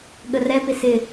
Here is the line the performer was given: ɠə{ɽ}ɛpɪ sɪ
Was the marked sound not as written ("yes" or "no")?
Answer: yes